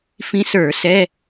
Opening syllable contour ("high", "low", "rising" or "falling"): rising